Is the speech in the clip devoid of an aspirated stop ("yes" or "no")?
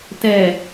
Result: yes